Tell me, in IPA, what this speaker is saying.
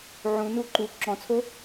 ʕũnu ǃu ǁɔ̃t͡sʰo

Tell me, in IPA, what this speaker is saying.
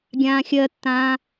ɡʲãːxʲɜtːãː

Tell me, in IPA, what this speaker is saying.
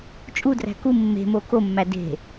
t͡ʃʼudræ̤ ku mːe̤mo komːæ de̤

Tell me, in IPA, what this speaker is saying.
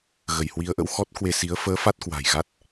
ɣə˧˩jhwi˨˦ə̯ʔə̰˧˥w xɔ˦˥t̚kwe˧si˨˦ə̯ fəː˨˦ fa˦˥t̚kwa̤˨˩j ɣa˦˥t̚

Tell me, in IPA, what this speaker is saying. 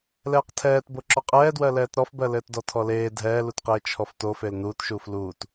lɛːqtʰɛːtbo ǁɔqʼɛːdwɜ lɛːtɾɔfbɜ lɘːtdɔtʰɔleː dʱɛːlutqeː t͡ʃʰɔftofel nuːtʃuːf luːt

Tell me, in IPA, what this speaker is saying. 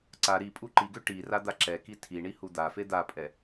ǀa ɾi pʼuǃiɡø ʈi rad̪aǁɛki tʰiɳi hud̪afe d̪apʼɛ

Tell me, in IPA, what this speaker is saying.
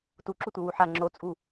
tuǁutʷɨ wuħa ŋ͡ǁot͡sʼu

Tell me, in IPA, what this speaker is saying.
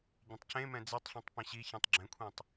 ɟɛ̃tˤcẽmɛ̃ d͡zetˤɬẽtˤ pẽɕiçĩtˤ ɡ͡ǁɛ̃kʷʰĩtˤ

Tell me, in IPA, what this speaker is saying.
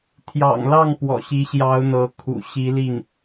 t̪ʰjɑ̰˨˩ŋlɑ˥˩ŋ pwɔ̰˨˩ɕi˧˥ɕjɑ˧˥ʊ̯ n̪ɤ˧˥kʰṵ˨˩ ɕi˧˥li˥˩ŋ

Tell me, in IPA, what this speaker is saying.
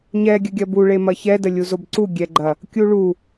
ɲɛ ɡʲəɡʲɐbu ɭemɐçɛ dəlʲuzobǀu ɡʲɛɡ͡ǃɐ | kʲuɭu

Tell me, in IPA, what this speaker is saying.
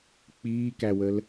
k͡piːkæwəl

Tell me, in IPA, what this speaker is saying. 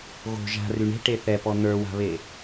ɣo̤ ʒa̤ ryɳe̤ ʈeθɛpɔ n̪ə˞wa̤βe

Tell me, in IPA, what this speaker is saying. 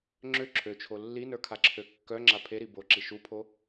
ŋ͡ǁø ǁʰøt͡ʃʰo lːinə˞kʰaǁʰø kːœŋ͡ǁa pʰeɾi boǁi ʃupʰo

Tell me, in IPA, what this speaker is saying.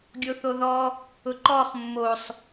ɡʲoθoðɔ | ʊǃɔχ mːosˤ

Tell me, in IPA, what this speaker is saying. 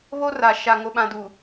βo˦ra˨ʃa˨ ŋo˨ɓã˨du˨

